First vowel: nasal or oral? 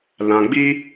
nasal